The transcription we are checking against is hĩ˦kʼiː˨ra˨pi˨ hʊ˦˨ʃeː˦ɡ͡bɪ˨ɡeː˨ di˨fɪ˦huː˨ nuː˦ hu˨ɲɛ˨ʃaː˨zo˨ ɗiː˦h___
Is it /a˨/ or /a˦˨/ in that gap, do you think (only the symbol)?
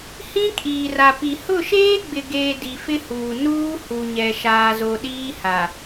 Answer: a˨